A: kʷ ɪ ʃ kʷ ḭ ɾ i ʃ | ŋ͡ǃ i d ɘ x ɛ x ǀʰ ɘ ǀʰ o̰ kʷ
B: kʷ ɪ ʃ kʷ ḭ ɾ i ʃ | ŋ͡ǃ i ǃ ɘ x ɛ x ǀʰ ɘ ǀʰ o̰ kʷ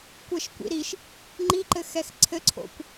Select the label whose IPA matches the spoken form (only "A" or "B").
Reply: B